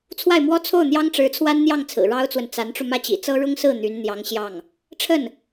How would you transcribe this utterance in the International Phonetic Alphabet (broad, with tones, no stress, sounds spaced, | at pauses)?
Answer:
t͡sʰ w a˥˩ ɪ̯ m w ɔ˥ t͡sʰ o˥˩ ʊ̯ n̪ j ɑ˥ ŋ ʈ͡ʂ ɻ̩˧˥ t͡sʰ w a˥ n n̪ j ɑ˥˩ ŋ t͡sʰ ɹ̩˨˩ ɻ ɑ˥ ʊ̯ t͡s w ə˨ n t͡s a˧˥ n ʈ͡ʂ u˧ m ä˥˩ t͡ɕ ḭ˨˩ t͡s ɤ˥ ɻ ʊ˥ ŋ s ɹ̩˥˩ n̪ y˧˥ n n̪ j ɑ˧˥ ŋ ɕ j ɑ˥˩ ŋ | ʈ͡ʂʰ ə˥˩ n